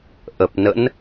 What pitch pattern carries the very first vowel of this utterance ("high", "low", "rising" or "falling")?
low